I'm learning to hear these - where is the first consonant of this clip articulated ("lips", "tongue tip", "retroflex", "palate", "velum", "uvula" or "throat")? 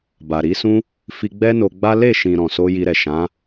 lips